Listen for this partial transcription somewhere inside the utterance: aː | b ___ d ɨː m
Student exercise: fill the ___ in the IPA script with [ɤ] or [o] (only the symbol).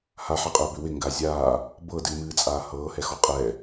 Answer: ɤ